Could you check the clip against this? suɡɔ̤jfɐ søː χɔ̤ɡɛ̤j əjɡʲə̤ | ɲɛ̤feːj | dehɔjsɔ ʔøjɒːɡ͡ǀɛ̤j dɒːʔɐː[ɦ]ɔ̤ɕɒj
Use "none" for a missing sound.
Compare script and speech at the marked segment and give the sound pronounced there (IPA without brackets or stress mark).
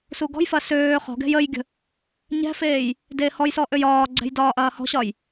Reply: h